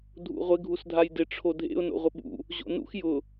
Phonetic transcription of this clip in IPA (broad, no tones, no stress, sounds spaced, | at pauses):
dʱ ṵ ʁʷ ɪ ɡʱ u s dʱ a j d ɪ ʈ͡ʂʰ o dʱ ḛ ʊ̯ n o̰ ʁʷ ɪ ɓ ṵ | ʑ o̰ n ṵ x j ʊ